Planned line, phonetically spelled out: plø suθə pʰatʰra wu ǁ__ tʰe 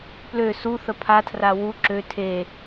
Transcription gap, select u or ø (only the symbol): ø